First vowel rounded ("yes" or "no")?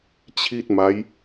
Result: no